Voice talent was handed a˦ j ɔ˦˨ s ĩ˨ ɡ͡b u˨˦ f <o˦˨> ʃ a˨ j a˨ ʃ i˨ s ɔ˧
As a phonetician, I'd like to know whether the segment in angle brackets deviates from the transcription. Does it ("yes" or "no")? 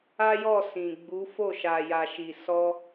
no